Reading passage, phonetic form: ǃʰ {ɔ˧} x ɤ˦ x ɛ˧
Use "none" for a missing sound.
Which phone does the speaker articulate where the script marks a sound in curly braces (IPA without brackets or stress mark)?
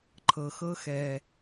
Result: ɤ˧